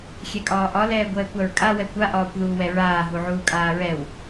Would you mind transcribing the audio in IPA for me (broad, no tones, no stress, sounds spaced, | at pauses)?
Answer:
xʲ ɛ kʼ ɒː ʔ ɒ l ɛː ɡʷ ɛː kʷ a ɹ kʼ a w ɛ kʷ a ʔ ɒː kʷ ð uː w ɛ ɹ aː ɦ u ʕ uː kʼ aː ɹ ɛ w